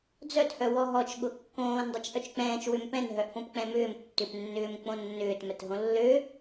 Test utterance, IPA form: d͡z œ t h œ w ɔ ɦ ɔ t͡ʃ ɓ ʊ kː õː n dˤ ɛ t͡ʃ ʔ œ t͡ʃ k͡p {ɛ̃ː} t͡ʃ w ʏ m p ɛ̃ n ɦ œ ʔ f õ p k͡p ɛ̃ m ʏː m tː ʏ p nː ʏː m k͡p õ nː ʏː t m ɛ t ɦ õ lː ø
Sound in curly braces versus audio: correct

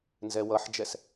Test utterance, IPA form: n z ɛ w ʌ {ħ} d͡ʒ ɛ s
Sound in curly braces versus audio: correct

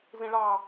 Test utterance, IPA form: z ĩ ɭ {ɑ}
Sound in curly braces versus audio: correct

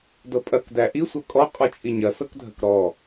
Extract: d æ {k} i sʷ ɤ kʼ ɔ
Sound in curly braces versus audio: incorrect: ʔ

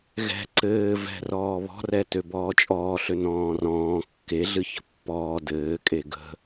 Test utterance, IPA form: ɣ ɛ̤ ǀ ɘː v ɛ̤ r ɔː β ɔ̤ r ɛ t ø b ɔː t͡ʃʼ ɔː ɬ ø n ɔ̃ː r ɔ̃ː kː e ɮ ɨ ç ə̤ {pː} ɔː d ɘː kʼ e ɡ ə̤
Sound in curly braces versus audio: correct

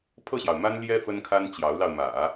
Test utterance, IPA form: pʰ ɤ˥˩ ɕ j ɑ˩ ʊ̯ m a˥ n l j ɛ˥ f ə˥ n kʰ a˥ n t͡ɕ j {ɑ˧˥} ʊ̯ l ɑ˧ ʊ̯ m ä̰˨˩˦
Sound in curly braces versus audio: correct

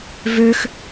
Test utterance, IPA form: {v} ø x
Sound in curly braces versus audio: correct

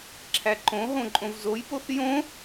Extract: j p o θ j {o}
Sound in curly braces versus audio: incorrect: õ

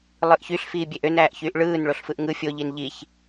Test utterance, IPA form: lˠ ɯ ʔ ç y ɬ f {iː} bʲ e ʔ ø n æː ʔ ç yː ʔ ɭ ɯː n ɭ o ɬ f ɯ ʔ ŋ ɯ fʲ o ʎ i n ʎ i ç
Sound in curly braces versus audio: correct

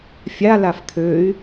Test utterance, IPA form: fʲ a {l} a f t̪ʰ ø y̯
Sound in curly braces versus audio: correct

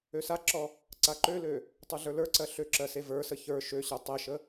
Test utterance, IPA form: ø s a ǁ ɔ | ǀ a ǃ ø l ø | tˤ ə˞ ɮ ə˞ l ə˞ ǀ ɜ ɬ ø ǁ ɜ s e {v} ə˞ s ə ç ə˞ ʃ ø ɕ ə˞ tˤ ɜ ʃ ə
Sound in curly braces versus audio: correct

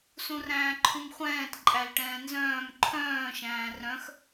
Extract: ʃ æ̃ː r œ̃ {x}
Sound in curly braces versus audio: correct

